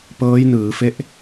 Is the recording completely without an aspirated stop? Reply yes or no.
yes